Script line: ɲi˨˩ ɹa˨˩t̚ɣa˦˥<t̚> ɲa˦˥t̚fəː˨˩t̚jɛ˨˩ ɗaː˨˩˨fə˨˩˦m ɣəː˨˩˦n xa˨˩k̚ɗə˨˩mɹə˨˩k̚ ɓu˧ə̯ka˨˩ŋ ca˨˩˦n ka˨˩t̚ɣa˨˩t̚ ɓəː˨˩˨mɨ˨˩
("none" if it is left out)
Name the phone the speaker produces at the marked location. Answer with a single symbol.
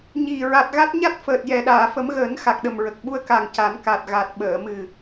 t̚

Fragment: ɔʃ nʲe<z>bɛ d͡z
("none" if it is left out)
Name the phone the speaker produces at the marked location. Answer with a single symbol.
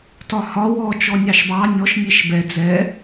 ʃ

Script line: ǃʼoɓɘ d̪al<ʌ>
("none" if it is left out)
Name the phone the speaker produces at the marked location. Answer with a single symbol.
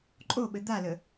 ə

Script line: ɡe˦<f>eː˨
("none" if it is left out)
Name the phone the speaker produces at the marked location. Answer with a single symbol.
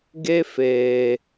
f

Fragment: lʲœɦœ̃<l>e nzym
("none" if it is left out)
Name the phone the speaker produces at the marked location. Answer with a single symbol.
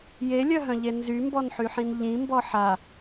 ʎ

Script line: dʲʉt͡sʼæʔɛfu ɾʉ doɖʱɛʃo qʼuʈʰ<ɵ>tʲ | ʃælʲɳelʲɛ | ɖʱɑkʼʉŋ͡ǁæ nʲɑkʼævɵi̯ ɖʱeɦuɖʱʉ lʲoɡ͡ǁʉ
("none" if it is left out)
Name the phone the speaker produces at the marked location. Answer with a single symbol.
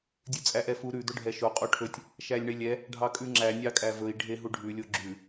ɵ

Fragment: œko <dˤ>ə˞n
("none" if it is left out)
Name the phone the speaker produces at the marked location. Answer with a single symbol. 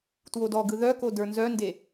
d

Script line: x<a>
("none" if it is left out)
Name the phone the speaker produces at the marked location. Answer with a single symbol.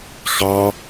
ɑ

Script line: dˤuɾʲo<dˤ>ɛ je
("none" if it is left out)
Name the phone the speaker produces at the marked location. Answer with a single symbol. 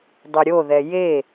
ð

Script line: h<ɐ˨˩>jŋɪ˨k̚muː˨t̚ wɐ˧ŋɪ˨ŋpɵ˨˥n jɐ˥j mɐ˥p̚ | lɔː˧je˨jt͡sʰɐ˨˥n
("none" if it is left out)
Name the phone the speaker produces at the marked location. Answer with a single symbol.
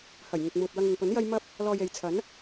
ɐ˨˩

